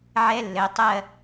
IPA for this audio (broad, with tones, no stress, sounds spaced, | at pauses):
ʕ ɛ˦˥ lː ɘ˩˥ tˤ ɜ˥˧